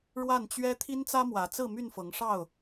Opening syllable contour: falling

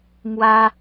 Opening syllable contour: high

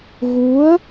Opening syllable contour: rising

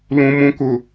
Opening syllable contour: low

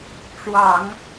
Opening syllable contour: low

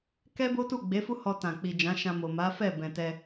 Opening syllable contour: high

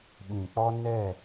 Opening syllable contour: low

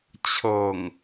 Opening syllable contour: low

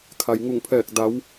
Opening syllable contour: low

